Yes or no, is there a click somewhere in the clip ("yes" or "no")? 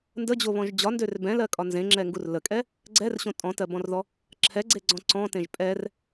yes